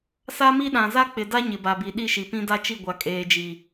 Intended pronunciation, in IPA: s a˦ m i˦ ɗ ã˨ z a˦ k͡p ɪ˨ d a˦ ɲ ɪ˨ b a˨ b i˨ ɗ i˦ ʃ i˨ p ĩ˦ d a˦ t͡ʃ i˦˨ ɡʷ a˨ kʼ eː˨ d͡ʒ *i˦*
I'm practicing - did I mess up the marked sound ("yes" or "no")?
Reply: yes